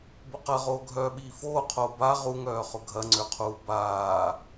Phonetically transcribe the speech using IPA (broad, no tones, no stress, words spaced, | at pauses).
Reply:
bʊqɐʁoː ɡʱœːɓiːfoːqʰoː ba ʁuŋœː χʊɡʱɐŋ͡ǀøqʰuː baː